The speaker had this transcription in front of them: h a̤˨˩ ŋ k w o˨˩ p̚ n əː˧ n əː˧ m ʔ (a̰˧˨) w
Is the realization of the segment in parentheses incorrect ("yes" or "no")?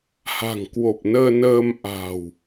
yes